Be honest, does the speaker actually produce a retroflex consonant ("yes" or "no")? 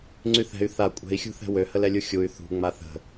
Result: no